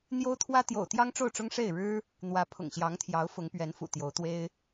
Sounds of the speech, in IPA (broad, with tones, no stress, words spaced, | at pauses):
n̪jo˥ʊ̯t̪ʰwä˥ t̪jo̰˨˩ʊ̯t̪jɑ˥ŋʈ͡ʂo˥˩ʊ̯ʈ͡ʂʊ˥ŋ ʂe˥˩ɪ̯ɻɻ̩˥ | n̪wä˧˥pʰʊ̰˨˩ŋɕjɑ˧˥ŋt̪ʰjɑ˧˥ʊ̯ fʊ˧˥ŋpɥɛ˧˥nfṵ˨˩ t̪jo˧˥ʊ̯t̪we˥ɪ̯